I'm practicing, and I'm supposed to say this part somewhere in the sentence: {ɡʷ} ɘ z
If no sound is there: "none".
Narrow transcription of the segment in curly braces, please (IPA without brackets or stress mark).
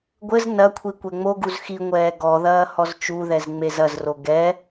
ɡʷ